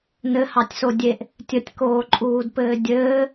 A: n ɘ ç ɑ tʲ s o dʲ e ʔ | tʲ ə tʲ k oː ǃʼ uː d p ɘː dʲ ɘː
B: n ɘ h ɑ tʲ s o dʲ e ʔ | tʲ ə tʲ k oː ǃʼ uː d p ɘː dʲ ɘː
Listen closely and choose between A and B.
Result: B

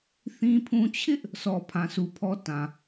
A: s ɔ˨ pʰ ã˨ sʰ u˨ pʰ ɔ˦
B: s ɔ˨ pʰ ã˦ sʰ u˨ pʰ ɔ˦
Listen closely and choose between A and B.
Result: A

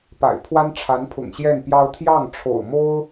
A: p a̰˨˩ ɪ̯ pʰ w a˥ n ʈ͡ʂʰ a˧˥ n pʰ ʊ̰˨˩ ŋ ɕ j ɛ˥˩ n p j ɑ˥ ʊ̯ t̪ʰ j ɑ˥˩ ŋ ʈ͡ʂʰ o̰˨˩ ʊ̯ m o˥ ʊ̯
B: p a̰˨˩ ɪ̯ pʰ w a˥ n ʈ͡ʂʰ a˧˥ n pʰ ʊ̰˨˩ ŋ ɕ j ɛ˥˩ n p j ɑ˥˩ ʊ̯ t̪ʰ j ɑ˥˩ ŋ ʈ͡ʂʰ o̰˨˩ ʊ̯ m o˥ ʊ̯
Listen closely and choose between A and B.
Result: A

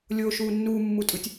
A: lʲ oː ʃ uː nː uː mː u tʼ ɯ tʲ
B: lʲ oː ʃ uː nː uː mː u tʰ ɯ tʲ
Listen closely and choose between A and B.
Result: A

